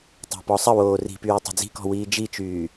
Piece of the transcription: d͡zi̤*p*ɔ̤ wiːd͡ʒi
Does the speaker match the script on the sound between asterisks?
no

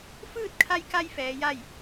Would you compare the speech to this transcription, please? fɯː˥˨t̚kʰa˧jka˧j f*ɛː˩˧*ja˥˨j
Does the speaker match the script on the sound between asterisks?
yes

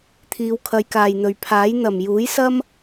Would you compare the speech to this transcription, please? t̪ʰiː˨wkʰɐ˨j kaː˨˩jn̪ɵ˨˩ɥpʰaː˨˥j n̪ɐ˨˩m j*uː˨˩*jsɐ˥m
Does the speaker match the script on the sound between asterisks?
no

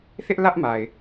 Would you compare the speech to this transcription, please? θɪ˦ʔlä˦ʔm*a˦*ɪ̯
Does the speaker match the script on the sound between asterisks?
no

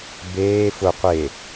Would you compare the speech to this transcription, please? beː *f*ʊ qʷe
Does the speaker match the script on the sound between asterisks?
yes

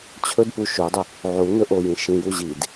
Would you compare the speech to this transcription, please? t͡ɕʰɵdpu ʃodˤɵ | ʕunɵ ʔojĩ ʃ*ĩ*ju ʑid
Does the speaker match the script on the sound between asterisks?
yes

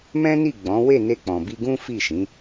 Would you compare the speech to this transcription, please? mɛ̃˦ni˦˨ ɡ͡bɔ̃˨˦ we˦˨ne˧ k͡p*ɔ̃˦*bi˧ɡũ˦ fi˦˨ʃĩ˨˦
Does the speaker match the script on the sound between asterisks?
no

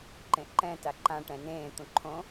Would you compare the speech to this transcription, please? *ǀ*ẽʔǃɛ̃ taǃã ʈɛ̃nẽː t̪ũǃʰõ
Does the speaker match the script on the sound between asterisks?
no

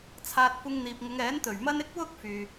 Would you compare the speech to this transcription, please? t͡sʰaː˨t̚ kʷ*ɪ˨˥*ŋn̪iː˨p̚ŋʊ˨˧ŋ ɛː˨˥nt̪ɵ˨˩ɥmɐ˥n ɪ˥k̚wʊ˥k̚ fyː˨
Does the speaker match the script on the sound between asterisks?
no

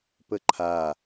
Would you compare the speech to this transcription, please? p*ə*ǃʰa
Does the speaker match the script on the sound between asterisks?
yes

